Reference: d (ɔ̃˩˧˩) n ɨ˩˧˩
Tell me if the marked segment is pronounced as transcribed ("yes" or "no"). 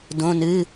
no